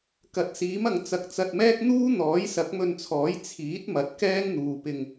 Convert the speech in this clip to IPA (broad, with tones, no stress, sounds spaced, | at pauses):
k ɐ˨˥ t̚ s iː˨˥ m ɐ˨ ŋ t͡s ɐ˨ k̚ t͡s ɐ˧ t̚ m ɛː˥ k̚ n̪ uː˥ n̪ ɔː˨˥ j s ɐ˨˥ k̚ m ɵ˧ n t͡sʰ ɔː˨˥ j t͡sʰ iː˨˥ t̚ m ɐ˨ t̚ k ɛː˥ ŋ n̪ uː˨ p ɪ˧ ŋ